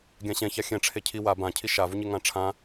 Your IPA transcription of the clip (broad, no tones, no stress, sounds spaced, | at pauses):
ɡʲ ã ɕ ɛ̃ ç a xʲ ɛ̃ ʈ͡ʂʰ e cʰ i w a b ã cʰ i ʃ a v u ɲ e ŋ ã ʈ͡ʂʰ ã